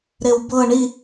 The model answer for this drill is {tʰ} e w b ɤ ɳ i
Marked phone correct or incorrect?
incorrect